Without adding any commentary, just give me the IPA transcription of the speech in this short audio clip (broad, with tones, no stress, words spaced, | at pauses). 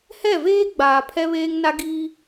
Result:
hɛ˦˨veː˦ ɡ͡baː˨pʰɛ˦βeː˦ŋna˦ ɡi˦